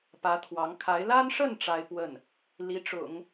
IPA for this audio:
pä˧˥t̪ʰwɑ˧˥ŋ kʰa˧˥ɪ̯ la˥nʂə˥˩n ʈ͡ʂa˥ɪ̯pwə˥˩n | li˧˥ʈ͡ʂʊ̰˨˩˦ŋ

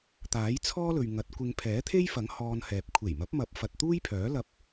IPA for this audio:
t̪aː˨˥jt͡sʰɔː˥lɵ˨ɥ ŋɐ˨˥t̚kʷɪ˧ŋ pʰɛː˨˥t̪ʰe˥jfɐ˨˥ŋ hɔː˧nhɛː˨p̚ kʷʰe˨˩jmɐ˨˥p̚mɐ˨˥p̚ fɐ˨t̚t̪uː˥jpʰœː˨˥ lɐ˧p̚

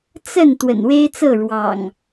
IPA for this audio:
t͡sə˥˨n t̪wə̰˨˩nwe˦ɪ̯t͡sɤ˥˨ ɻwɑ̰˨˩ŋ

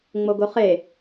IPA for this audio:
ŋ͡moɡoχe

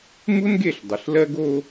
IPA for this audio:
mu˦nɡe˦˨ɬ dˤə˨ɬlɜ˦ɡ o˦

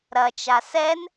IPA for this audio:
ɾɐt͡ʃa sɛn

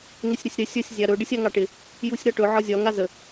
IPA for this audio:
ŋɪsʲɾɪsʲɾɪ sʲəsʲ zʲaɾɵ ɖɪsʲaŋɑʈɪ | jusʲɾɒʈɵ ʕɒzʲɒ ŋazə

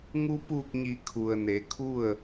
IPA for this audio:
ŋu˧ puː˧˩k̚ɲi˩˧ kʰu˩ə̯ne˩˧kʰu˥˨ə̯

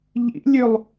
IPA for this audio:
ʎḭlʲølˠ

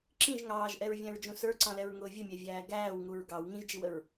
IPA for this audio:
ǁĩʒ ŋɑːʒʔɛɹvʲæ̃ɹd͡ʒũ sə˞ǀɑ̃lɛɹŋʊː vʲəmʲævʲæː ɡæːwŋuɹ ɡɑw ŋĩʒd͡ʒiwəɹ

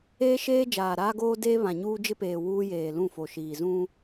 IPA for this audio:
eː˦ʃeː˦ d͡ʒaː˨ɾaː˦ɡoː˦deː˦ βã˨ɲuː˦d͡ʒɪ˦peː˨ wuː˦jeː˨lũ˦˨fo˨ ʃiː˨zũ˦

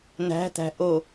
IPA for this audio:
næ̤tæ̤ ʔo

